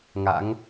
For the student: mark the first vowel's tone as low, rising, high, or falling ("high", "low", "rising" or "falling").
rising